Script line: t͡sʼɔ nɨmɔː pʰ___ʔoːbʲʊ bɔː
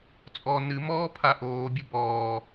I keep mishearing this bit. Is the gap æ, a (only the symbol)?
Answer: a